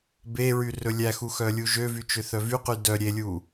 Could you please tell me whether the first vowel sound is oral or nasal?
oral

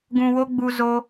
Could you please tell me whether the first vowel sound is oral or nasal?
nasal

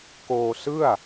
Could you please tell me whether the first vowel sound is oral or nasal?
oral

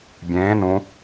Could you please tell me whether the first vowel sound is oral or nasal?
nasal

